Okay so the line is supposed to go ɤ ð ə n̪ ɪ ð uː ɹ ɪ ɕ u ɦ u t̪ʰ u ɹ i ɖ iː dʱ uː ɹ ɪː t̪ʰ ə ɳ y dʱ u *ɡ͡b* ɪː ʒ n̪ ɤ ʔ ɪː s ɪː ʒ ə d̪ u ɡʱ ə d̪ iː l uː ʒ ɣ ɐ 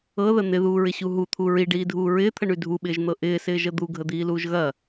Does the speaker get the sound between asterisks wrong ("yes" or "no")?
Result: yes